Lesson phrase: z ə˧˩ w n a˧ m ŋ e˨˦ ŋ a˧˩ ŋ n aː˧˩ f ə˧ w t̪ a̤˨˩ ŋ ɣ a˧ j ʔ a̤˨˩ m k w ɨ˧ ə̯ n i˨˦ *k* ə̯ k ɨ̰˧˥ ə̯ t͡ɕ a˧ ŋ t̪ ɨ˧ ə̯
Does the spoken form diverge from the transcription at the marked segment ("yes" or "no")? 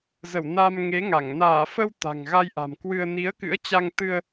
yes